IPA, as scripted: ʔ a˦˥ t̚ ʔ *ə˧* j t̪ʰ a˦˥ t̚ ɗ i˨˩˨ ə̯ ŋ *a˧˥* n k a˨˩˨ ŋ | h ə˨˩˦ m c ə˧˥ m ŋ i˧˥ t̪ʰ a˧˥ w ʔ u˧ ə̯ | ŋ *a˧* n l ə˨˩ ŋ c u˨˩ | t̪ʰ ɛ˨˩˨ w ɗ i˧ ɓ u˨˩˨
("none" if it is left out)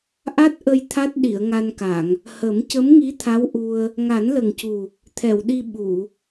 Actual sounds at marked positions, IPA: ə˧, a˧, a˨˩˦

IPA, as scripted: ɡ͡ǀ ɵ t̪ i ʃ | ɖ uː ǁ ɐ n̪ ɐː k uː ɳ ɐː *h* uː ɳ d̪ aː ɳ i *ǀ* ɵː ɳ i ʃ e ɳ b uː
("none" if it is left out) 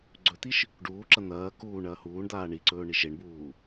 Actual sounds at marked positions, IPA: h, ǀ

